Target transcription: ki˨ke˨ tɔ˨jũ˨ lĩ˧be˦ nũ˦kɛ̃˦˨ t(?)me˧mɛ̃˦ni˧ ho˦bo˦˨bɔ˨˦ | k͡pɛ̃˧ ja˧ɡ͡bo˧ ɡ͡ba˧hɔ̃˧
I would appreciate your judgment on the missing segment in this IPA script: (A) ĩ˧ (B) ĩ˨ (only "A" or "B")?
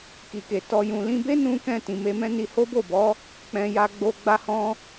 B